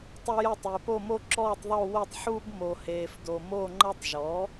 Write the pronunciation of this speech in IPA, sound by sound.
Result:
tˤ ʌ˥ j ʌ˥˧ tˤ e˨ p o˥˧ m o˥ ǁ ɔː˥˧ tˤ ðˤ o˥˧ w o˥˧ tˤ ħ uː˥ b m o˨ h eː˨ f d o˨ m o˥˧ ŋ͡ǃ ʌ˥ tˤ ʒ ɔ˩˥

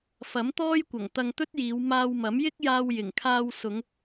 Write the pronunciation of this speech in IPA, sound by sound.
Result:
f ɐ˨˥ m t̪ ɔː˥ j kʷ ɐ˨˩ ŋ t̪ ɐ˧ ŋ t̪ ɵ˥ t̚ j iː˨˧ w m aː˧ w m ɐ˨˥ m j ɪ˥ k̚ j aː˧ w j ɪ˨˩ ŋ kʰ aː˧ w s ʊ˨˧ ŋ

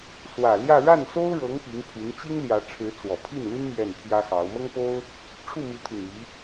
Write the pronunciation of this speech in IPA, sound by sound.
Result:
s w ä˨˩ l j ä˥˧ ɻ a˥˩ n s o˥ ʊ̯ ɻ ɤ˧˥ ŋ p i˧˥ ŋ pʰ y˧˥ n t͡ɕ i˥ ŋ l j ä˧˥ ʈ͡ʂʰ ɻ̩˧˥ t͡s w ɔ˨˩ pʰ i˥˩ n l y˥ n m j ɛ˥˩ n pʰ j ä˥ x ɑ˧˥ ʊ̯ m ɤ˥ ŋ p o˥ ʊ̯ | ʈ͡ʂʰ u˥˩ m i˧˥ t̪ʰ y˨˩ n i˧˥

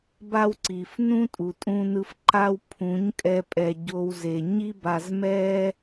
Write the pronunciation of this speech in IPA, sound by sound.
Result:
b a˦ w ǀ i˨ f n ũ˦ tʼ u˨ tʼ ũ˧ n ɯ˧ f ǃ a˧ w pʰ ũ˨˦ ɲ kʼ ɛ˧ pʼ ɛ˨ ɟ o˧ w z e˨ ɲ i˦ b a˧ z m ɛ˦

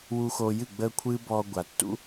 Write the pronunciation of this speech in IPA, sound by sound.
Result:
w u˧ x o˧ j ɨ˦˨ ɡ͡b əː˦ kʷʰ ɨː˦ b ɔ˧ ɡʷ a˨ tː ṵ˦

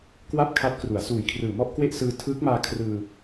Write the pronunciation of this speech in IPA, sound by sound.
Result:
k w a˥˩ p̚ kʰ a˦˥ t̚ k r u˩˦ a̯ s uː˨˩ j kʰ r ɯː˨˩ m ɔ˥˩ ʔ k w e˥˩ ʔ s ɯː˧ tʰ ɯː˦˥ k̚ m aː˧ kʰ r ɯː˧

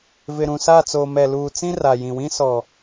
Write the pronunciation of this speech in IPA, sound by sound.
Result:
v ɪ˨ ɾ ũ˨ s a˦˨ t͡s oː˨ m ɛ˨ l uː˨ t͡s ĩ˦ r a˨ j ĩ˨ w ĩ˦ s ɔ˨

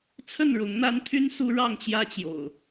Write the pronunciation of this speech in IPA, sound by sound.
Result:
t͡sʰ ə˥˨ n ɻ ʊ˨˦ ŋ n̪ a˦ n t̪ʰ y˦ n s u˦ ɻ ɑ˥˨ ŋ t͡ɕ j ä˦ t͡ɕ j o̰˨˩ ʊ̯

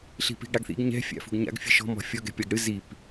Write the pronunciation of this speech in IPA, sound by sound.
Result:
ɬ i̤ p i̤ ɡ ɽ a ɡ θ ḭ ɡ ɲ ɛ̤ fʲ a̰ f ṳ ɡ ɲ a̰ ɡ fʲ ɨ ʃ ɔ̤ m ɔ̤ fʲ ɔ ɡ ɛ̤ pʲ a ɡ ɽ ɨ z i p

